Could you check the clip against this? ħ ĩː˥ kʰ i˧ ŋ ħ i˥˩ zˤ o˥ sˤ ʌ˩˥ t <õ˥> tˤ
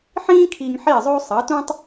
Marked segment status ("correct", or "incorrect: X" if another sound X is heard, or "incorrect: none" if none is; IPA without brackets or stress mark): incorrect: ũ˥